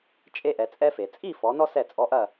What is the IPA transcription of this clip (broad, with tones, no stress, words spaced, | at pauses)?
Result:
t͡ʃʼe˦ʔɛ˩˧t͡sʼɛ˦fe˩ t͡sʼi˥˨fɔ˩˧nɔ˦ sɛ˧˩t͡sʼɔ˩˧˩ʔɐ˧˩